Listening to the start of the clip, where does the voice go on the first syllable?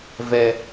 low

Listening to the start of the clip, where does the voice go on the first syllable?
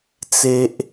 high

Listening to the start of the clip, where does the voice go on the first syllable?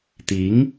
rising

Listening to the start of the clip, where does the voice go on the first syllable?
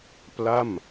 falling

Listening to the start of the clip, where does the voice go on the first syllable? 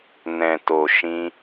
low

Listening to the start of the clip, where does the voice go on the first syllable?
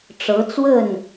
rising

